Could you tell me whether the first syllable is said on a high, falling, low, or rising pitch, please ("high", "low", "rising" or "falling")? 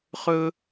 high